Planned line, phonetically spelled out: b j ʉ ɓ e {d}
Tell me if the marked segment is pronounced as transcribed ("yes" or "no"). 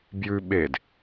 yes